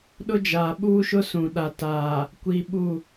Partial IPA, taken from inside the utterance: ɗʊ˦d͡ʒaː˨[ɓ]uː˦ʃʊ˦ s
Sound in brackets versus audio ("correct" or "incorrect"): correct